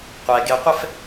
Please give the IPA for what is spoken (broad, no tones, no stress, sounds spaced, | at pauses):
qʷ ɛ ɡ e qʷ ɛ f